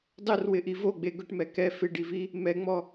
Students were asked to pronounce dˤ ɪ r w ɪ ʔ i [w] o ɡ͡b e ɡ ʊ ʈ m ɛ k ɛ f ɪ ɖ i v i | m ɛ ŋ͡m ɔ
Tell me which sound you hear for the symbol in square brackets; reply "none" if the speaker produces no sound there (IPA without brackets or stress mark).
v